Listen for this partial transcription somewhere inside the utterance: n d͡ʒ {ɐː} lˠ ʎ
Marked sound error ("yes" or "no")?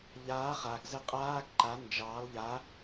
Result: yes